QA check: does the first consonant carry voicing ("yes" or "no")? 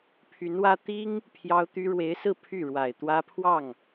no